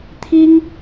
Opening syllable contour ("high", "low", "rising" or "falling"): high